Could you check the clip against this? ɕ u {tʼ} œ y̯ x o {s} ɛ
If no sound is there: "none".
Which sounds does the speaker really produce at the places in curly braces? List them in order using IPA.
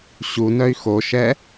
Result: n, ʃ

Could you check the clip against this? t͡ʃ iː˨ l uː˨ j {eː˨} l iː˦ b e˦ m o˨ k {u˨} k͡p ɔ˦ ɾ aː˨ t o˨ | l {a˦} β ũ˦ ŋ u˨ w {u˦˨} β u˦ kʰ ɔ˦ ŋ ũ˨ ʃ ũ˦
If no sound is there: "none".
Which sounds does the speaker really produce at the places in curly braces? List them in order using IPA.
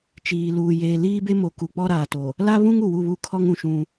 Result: eː˨, u˨, a˦, u˦˨

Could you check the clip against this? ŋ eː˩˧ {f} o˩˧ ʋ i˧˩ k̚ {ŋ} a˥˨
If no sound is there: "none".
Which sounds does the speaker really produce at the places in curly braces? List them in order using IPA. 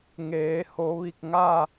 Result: h, ŋ

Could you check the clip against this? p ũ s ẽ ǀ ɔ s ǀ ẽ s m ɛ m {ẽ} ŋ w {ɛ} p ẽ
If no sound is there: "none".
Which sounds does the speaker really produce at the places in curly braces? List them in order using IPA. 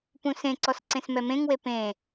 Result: ẽ, e

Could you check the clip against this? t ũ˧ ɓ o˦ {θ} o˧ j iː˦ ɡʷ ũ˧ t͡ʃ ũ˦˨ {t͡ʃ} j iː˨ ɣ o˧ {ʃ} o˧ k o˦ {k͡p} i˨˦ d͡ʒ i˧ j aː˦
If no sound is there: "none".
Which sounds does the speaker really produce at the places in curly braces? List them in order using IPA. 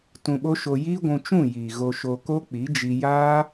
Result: ʃ, none, ʃ, k͡p

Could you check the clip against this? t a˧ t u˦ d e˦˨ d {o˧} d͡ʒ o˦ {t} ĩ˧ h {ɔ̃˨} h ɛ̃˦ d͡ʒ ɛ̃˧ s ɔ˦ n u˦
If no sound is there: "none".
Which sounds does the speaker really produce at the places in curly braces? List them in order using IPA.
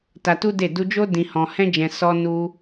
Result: u˧, d, ɔ̃˧

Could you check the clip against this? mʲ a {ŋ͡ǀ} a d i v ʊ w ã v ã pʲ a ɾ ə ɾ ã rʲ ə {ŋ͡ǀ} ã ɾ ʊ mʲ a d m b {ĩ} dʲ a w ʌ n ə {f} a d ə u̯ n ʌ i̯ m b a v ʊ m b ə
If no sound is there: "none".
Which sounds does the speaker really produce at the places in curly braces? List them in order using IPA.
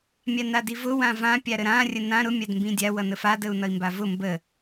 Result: n, n, ĩ, f

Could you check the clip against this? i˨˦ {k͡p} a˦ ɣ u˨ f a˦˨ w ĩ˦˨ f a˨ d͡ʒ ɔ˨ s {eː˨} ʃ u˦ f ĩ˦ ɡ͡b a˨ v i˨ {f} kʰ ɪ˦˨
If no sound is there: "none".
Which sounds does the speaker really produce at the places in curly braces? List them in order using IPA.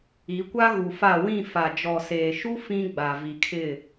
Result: kʷ, eː˨, none

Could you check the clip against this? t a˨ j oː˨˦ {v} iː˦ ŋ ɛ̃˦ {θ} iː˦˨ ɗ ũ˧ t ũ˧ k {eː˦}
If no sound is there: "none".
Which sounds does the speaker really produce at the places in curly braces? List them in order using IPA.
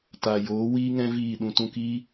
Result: w, v, iː˦

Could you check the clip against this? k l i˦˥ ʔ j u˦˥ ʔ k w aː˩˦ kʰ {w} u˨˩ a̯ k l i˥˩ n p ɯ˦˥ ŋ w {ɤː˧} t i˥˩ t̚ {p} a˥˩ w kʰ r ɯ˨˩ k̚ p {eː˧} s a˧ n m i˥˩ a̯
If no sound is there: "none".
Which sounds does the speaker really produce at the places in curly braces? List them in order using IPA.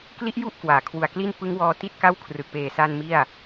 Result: w, ɔː˧, k, eː˨˩

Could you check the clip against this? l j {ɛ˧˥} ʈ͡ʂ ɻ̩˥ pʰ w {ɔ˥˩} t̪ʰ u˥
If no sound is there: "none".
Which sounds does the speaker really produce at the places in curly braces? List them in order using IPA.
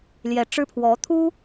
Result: ɛ˧˥, ɔ˧˥

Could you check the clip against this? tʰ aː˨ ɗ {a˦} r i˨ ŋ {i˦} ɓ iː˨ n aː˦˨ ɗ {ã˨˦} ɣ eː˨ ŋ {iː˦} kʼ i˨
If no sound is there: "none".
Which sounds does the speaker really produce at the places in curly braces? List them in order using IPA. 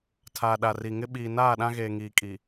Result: a˨, ɪ˦, ã˦, iː˨

